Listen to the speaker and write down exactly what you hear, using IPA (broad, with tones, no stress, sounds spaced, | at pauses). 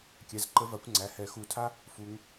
kʲ ɛ˩˧˩ z ǃ ə˨˦ v a˨˩˦ kʷ ŋ͡ǀ æ˩˧˩ h ɛ˨˩˦ x u˨˩˦ tʰ a˦˥ | f u˨˦ ŋ